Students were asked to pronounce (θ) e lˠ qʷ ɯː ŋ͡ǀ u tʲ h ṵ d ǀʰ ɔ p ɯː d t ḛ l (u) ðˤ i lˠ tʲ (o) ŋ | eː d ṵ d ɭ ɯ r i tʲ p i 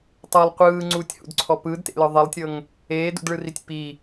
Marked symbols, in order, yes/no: no, no, no

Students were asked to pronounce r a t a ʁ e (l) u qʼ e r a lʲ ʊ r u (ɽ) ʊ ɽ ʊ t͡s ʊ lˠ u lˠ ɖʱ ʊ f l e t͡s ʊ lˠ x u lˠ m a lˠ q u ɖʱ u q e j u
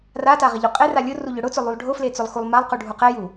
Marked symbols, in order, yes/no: no, no

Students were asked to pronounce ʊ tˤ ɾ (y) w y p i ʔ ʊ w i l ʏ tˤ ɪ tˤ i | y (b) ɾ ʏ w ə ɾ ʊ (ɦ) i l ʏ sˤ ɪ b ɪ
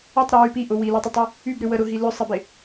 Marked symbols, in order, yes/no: no, yes, yes

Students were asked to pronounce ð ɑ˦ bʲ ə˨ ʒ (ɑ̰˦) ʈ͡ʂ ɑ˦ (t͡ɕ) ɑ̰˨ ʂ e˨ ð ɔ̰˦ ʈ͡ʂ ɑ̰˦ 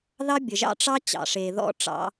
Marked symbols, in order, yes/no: yes, yes

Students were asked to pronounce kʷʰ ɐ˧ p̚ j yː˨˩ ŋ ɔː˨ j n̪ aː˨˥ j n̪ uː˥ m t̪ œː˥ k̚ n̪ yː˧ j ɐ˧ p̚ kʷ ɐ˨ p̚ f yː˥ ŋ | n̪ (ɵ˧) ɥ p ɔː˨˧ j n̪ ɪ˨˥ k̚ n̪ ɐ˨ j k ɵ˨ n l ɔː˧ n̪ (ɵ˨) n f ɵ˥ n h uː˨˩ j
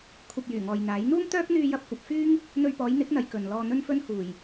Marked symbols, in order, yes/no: yes, no

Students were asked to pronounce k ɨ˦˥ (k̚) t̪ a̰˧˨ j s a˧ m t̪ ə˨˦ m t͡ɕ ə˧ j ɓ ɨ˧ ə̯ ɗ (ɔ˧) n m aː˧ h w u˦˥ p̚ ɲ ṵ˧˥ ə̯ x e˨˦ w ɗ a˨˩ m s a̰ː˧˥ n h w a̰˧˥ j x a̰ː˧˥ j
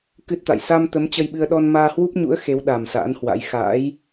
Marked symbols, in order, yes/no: no, yes

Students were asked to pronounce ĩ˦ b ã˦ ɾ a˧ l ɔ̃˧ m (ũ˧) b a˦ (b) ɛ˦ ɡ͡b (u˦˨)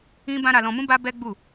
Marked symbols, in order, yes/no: no, yes, yes

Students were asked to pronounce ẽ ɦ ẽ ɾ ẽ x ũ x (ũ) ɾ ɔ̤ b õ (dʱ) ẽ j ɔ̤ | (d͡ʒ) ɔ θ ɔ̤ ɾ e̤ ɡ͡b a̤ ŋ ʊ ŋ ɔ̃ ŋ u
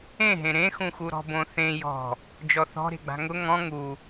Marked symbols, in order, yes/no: no, no, yes

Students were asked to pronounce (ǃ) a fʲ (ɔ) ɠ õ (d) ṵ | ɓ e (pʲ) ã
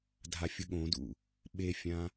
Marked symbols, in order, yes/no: no, no, yes, no

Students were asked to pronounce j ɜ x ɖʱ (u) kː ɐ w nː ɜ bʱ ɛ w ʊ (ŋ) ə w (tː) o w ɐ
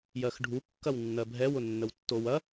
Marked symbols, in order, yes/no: yes, no, yes

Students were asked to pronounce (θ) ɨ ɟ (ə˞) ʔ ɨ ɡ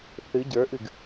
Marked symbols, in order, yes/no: yes, yes

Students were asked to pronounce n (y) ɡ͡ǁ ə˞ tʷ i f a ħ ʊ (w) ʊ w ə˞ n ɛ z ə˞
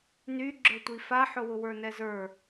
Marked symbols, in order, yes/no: yes, yes

